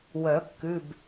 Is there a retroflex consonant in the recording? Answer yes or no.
no